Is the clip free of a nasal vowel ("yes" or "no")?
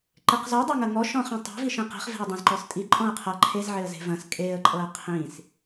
no